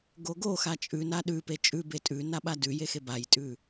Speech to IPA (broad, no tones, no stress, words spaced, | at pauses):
ɡoɡoxa t͡ʃʼʉna ɗʉpe t͡ʃʼʉbe tʼʉna ɓadʉje xebajtʼʉ